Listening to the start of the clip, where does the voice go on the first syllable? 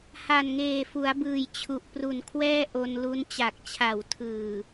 low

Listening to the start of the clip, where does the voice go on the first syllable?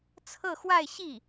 falling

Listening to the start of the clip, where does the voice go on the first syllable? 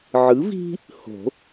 rising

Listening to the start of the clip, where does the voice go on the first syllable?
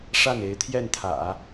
falling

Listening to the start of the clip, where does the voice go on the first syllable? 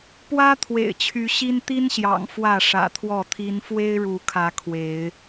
high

